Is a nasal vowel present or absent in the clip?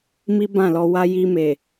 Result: present